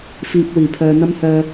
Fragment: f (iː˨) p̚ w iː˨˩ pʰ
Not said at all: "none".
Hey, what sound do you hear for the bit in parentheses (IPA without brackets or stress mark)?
iː˨